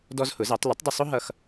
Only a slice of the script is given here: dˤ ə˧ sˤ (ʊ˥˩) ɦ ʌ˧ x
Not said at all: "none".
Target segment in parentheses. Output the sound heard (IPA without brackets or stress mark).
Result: ʊ˥